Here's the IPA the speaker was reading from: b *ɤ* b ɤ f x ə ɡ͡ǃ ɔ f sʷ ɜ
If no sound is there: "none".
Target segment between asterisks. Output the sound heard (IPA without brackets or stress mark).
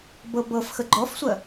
ɤ